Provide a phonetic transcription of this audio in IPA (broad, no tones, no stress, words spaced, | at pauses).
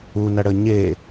unɐɽə ɲe